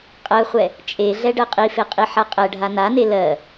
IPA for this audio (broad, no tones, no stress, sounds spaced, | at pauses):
qʼ ɜ χʷ ɛ | t͡ʃʼ e ɮ ɛ ɖ ɜ qʼ i f e qʼ i ħ a qʼ ɛ ɖʱ a n a n e l ɜ